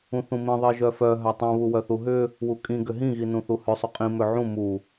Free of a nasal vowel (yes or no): no